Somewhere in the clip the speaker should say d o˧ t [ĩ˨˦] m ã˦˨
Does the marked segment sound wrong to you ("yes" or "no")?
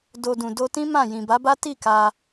yes